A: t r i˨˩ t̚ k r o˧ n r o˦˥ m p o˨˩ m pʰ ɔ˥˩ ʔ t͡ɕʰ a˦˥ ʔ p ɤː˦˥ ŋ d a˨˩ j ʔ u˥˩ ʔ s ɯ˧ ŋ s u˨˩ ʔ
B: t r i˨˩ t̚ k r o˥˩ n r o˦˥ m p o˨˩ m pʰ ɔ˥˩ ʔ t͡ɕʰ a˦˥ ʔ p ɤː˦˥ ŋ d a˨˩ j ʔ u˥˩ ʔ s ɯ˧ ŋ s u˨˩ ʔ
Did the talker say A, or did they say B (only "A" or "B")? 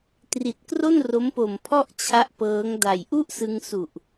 B